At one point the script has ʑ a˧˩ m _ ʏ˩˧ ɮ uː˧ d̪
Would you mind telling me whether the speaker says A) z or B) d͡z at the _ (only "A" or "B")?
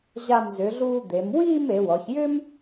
A